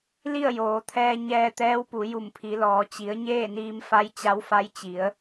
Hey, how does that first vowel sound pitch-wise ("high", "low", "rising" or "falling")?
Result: falling